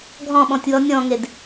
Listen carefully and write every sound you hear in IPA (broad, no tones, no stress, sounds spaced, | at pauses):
ɡʱ ɔ̃ ɓ ɔ̃ tʲ w ɔ nʲ ɔ̃ ŋ e d